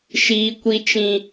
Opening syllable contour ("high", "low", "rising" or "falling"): high